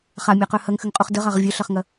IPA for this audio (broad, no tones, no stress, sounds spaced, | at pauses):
χ a mʲ a q œ h ɐ ŋ x ʏ ŋ qʼ u χ d ə ʁ a ʁ vʲ œ ɬ ɐ χ ŋ ɐ